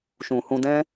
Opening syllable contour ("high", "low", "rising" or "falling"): low